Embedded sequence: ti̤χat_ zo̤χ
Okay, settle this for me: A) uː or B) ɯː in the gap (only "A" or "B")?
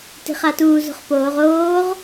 A